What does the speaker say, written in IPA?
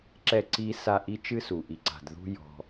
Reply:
ǁ ɛ˥˩ ǀ i˥ s a˥˩ ʔ i˥ t͡ʃ ɨ˥ s u˩ ʔ i˩ ǀ a̤˩ d ð ṳ˥ j ɔ̤˩

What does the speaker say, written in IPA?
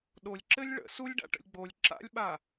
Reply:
ɗ o lʲ ǁ ɘ lʲ ɭ ə̰ s u lʲ ɖ a̰ ʈ ə̰ lʲ ɡ͡b o lʲ ǁ a̰ lʲ ɓ a

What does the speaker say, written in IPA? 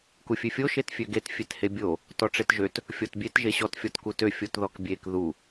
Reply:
k u fʲ ø fʲ o ʃ e t fʲ ø ɡ e t fʲ e t h e bʲ o | t ɔ ʈ͡ʂ e t ʒ ø t | fʲ ɔ t bʲ e t ʒ e ɕ ɔ t fʲ ɔ t k u t ø fʲ o t ð ɔ k bʲ e k ð u

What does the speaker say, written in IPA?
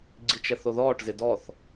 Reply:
ɡ͡ǀ i t͡ʃ ɛ θ o ð ɔː ʈ z ɪ d ɔ θ

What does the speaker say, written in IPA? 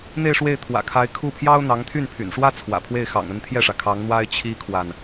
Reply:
n̪ e˥˧ ɪ̯ ʂ w e˥˩ ɪ̯ t̪ʰ w ä̰˨˩ kʰ a˧˥ ɪ̯ kʰ u˥˩ pʰ j ɑ˥ ʊ̯ n̪ ɑ˧˥ ŋ t̪ʰ y˥˩ n pʰ y̰˨˩ n ʂ w ä˥ t͡sʰ w ä̰˨˩ pʰ w e˥˩ ɪ̯ x ɑ̰˨˩ ŋ ə˥˧ n t̪ʰ j ɛ˥˩ ʂ ä˩ kʰ ɑ˧˥ ŋ n̪ w a˥ ɪ̯ t͡ɕʰ i˥ kʰ w a˨ n

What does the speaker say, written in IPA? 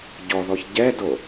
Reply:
ɟ ɔ ð ɔ ç ɟ ɛ d o

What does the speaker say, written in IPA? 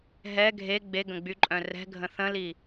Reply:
ɦ ɛ ɡʱ e ɡ͡b e ɡ ə̃ ɡ͡b y ǃʼ œ̃ r ɛ̤ ɡʱ ə̃ θ ə̃ l i

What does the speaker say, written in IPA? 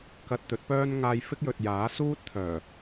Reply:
k ɐ˧ t̚ t̪ ɵ˨˥ t̚ p œː˥ n ŋ aː˧ j f ɪ˥ k̚ j ɵ˨ t̚ j aː˨˥ s uː˥ t̚ t̪ʰ œː˨˩

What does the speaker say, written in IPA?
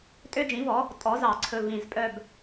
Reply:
tʼ ø˦ d͡ʒ ĩ˩˥ v ɔ˩˥ | tʼ ɔ˩˥ z ɑ˨˩˦ ǀʰ ɵ˨˩ v ĩ˨˩ z pʼ œ˦˨ b

